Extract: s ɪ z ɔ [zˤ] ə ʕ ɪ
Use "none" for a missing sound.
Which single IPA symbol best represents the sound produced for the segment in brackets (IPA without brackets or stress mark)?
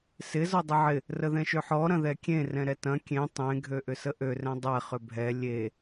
dˤ